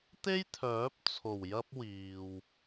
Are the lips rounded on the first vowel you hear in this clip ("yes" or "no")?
no